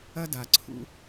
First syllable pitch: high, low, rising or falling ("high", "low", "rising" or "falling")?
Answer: high